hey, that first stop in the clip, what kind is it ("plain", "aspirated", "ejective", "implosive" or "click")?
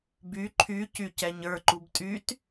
plain